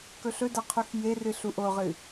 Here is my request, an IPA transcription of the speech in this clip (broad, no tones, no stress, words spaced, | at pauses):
kɵɬɵdɐ qʰʉxjerɨ ɬuʔoʁɨ